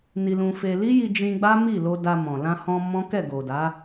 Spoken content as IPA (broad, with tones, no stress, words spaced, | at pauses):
ni˧lũ˧fe˧ li˦ji˧d͡ʒĩ˧ ɡ͡ba˦mi˦˨lo˧ da˧mɔ̃˨ lã˧hɔ̃˧ mɔ̃˦kɛ˦˨ɡo˨da˨˦